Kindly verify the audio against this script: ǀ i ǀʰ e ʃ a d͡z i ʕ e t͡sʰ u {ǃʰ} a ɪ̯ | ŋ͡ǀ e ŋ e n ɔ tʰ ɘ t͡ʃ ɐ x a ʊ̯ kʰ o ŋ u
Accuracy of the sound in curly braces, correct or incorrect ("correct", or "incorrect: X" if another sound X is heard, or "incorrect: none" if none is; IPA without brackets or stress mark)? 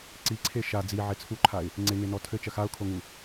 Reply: correct